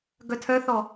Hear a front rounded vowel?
yes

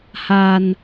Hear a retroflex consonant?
no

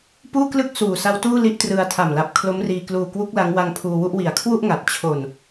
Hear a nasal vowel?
no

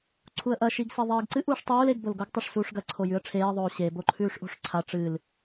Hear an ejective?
no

